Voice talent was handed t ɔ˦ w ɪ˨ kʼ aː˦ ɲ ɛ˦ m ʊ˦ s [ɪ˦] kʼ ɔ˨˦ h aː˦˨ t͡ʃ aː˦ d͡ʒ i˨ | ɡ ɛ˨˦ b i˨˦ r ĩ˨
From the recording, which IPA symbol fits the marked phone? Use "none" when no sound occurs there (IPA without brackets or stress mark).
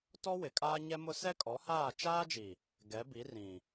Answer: ɛ˦